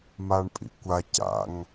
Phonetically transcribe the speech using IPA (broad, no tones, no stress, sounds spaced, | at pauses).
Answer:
m a ɳ pʼ ḭ kʷ a c a̰ ŋ